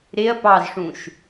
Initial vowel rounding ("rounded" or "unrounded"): unrounded